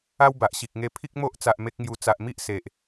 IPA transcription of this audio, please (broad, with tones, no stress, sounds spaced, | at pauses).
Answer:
a˦ w b a˨ ʔ ɕ i˨ k̚ ŋ e˧ pʰ i˦ k̚ m o˦ ʔ t͡s a˨ ʔ m e˦ k̚ ŋ j u˧ t͡s a˨ ʔ m i˦ ʔ s e˨ ʔ